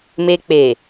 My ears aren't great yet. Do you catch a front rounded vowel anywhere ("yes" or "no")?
no